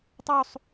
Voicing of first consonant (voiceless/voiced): voiceless